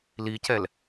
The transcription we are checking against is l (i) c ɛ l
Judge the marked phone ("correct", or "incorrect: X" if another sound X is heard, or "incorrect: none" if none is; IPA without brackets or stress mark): correct